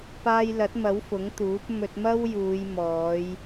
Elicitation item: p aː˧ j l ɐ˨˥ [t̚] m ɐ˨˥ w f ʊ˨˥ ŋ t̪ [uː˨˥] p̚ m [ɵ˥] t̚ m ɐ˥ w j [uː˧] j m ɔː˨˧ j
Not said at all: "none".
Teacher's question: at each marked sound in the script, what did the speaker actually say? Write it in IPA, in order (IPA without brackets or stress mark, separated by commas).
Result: t̚, uː˨˥, ɵ˧, uː˨˧